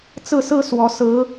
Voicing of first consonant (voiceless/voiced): voiceless